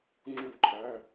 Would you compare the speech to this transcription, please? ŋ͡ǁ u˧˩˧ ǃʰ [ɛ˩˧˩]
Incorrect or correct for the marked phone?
incorrect: æ˩˧˩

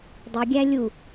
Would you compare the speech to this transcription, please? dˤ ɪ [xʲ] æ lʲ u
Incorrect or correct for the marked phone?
incorrect: ɡʲ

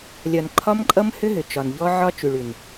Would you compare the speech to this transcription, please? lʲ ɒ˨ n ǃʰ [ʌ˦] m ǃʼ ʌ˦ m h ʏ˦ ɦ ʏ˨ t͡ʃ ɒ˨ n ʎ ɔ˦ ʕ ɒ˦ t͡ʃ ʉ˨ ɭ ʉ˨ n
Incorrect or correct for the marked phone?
incorrect: ɒ˦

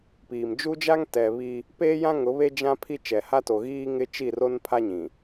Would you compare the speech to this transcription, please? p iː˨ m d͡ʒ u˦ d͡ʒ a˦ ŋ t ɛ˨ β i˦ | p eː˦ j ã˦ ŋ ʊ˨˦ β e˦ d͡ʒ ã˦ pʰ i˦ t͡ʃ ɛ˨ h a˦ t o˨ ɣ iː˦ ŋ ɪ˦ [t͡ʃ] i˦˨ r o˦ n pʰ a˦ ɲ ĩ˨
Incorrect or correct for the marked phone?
correct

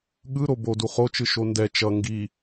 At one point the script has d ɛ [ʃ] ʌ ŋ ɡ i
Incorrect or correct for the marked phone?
incorrect: t͡ʃ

